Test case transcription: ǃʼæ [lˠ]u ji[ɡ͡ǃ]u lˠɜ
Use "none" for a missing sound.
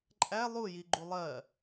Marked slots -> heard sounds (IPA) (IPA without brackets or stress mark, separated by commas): lˠ, ɡ͡ǃ